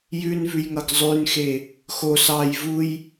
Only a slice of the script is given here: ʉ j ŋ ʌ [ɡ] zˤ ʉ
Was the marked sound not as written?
no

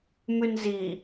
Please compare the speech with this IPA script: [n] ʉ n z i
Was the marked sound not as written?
yes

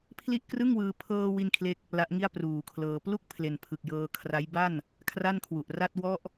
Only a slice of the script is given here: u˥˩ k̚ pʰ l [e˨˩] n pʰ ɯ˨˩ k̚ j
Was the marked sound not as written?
no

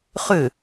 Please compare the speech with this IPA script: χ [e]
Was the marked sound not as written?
yes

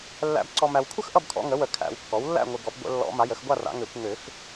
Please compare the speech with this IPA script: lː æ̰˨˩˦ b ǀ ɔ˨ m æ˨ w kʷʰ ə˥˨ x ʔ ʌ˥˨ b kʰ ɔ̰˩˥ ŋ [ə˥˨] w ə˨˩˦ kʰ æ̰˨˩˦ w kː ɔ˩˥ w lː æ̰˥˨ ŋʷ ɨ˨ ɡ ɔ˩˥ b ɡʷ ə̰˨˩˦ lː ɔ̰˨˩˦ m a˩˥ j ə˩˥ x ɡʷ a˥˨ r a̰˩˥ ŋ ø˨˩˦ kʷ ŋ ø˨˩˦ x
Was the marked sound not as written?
yes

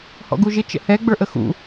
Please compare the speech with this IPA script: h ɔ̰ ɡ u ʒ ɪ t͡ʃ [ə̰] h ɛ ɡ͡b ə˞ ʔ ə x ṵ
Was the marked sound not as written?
no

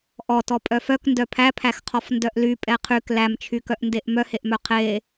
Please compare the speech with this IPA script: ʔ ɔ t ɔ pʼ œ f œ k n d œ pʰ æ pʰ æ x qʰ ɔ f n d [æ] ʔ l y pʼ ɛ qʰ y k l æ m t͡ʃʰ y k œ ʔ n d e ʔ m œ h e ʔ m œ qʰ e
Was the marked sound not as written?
yes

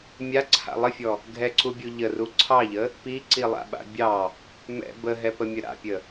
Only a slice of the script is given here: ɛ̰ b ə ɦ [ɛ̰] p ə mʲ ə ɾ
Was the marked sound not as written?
yes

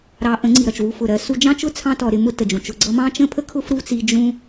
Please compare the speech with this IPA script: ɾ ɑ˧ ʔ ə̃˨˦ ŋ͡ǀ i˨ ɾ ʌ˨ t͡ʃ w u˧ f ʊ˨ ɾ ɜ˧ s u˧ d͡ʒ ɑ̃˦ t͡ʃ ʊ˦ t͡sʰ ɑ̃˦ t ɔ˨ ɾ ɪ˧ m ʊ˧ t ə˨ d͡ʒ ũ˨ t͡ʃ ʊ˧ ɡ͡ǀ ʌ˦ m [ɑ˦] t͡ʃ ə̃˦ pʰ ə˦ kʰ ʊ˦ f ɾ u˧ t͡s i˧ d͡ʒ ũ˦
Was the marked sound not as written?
yes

